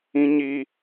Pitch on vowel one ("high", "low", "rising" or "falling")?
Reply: high